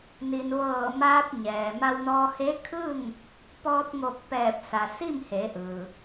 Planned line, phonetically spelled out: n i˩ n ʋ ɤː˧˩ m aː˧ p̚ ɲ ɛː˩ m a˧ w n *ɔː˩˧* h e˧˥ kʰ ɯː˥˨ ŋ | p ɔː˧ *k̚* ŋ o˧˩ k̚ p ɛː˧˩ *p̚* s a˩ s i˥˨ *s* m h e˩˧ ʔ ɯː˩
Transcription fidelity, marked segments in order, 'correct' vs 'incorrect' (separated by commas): incorrect, incorrect, correct, incorrect